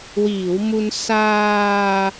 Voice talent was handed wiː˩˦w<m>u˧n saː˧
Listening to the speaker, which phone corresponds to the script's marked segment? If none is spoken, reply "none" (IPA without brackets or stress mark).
m